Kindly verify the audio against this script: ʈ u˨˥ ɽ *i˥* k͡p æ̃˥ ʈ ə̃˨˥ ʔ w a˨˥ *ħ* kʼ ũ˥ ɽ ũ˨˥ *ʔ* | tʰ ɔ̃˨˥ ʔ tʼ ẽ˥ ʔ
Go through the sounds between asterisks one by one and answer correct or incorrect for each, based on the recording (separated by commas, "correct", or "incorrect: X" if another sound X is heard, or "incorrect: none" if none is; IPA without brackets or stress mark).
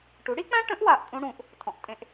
correct, incorrect: ʔ, correct